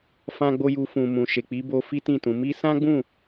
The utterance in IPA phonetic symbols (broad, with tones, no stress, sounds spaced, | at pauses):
f ã˦ ɡ͡b o˦ j u˧ f ũ˨ m ũ˨ ʃ e˨ k͡p i˨˦ b o˧ f i˦ t ĩ˦˨ t ũ˨˦ m i˧ s ã˦ ɡ͡b ũ˦˨